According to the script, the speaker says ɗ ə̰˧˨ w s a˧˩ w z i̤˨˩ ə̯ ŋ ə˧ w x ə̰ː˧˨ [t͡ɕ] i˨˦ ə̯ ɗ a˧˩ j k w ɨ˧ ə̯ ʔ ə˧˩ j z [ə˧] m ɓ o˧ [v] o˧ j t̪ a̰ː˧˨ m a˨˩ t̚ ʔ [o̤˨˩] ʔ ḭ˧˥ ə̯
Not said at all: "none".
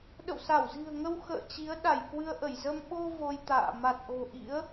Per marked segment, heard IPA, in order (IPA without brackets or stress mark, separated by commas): t͡ɕ, ə˧, v, o̤˨˩